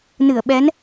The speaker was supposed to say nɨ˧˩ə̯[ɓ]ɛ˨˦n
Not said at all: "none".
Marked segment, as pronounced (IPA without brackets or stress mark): ɓ